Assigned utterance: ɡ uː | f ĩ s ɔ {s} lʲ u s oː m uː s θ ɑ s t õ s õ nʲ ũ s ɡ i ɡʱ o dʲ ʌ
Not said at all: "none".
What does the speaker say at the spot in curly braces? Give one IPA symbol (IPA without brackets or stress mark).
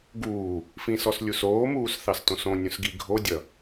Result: s